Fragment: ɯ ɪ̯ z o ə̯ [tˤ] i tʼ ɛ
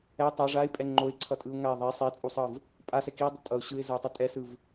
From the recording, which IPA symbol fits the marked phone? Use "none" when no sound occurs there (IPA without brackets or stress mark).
tˤ